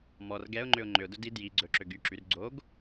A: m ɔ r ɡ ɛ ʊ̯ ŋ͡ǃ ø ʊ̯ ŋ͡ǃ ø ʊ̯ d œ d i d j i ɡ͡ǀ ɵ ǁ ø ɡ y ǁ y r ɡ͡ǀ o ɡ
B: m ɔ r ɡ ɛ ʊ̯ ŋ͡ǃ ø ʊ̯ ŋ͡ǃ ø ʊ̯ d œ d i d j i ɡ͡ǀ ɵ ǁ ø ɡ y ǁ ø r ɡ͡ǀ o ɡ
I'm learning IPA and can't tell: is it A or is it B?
A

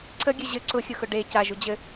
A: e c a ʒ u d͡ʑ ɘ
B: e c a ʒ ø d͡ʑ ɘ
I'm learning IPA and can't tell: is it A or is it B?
A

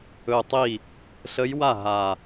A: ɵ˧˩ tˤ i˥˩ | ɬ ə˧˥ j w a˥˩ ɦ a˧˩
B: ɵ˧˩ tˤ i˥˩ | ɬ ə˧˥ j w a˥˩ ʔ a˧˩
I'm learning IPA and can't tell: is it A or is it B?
A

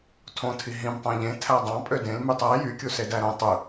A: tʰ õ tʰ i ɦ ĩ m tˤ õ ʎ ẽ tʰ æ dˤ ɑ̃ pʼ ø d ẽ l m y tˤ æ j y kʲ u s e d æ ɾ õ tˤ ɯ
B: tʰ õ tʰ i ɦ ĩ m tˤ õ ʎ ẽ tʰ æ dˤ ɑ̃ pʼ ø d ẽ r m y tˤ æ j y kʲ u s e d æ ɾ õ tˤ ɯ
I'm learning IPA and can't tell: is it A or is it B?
A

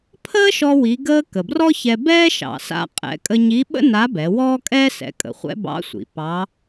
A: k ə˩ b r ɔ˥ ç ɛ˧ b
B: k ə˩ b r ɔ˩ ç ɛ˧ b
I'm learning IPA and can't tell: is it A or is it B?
A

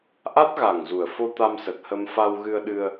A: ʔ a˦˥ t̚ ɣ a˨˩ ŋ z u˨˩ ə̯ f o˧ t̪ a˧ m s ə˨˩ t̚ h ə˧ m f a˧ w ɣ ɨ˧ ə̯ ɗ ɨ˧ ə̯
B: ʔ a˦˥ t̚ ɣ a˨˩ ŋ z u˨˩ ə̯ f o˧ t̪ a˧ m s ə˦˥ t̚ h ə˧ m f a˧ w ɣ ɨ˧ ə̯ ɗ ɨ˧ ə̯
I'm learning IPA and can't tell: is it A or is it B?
A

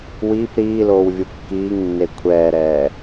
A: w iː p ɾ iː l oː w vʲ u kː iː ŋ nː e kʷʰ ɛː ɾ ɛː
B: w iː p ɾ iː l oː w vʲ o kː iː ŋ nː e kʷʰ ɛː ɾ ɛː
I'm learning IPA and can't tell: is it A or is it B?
A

